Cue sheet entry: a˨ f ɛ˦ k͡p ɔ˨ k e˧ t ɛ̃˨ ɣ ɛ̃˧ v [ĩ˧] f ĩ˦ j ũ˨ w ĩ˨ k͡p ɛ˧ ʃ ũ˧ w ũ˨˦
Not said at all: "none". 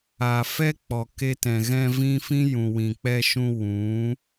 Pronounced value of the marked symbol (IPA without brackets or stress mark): ĩ˧